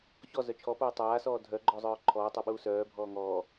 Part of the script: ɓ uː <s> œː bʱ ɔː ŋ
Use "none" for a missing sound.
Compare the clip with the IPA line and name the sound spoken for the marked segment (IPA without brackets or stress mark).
s